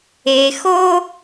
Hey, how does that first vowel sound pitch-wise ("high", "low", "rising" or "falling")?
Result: low